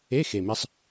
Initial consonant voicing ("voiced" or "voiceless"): voiceless